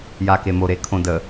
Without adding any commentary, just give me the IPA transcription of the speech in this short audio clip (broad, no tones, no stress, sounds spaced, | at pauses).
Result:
j a k e m o ɾ e kʰ õ d ə